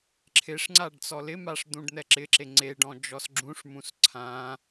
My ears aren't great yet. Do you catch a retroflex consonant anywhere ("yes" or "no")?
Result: yes